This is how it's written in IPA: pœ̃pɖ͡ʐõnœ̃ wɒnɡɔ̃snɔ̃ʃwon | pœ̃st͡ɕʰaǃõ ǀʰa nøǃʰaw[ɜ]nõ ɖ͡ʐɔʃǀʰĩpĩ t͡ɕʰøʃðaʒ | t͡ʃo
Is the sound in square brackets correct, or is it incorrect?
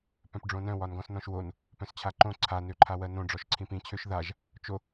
correct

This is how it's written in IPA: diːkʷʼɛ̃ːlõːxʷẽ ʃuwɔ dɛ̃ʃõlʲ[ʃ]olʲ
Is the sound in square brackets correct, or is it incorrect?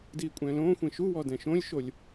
correct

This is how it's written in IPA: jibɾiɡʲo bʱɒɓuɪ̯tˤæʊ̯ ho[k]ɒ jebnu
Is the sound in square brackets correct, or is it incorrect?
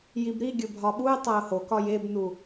correct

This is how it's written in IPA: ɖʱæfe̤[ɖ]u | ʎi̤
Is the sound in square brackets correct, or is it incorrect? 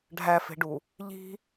correct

